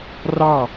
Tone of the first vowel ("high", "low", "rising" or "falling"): falling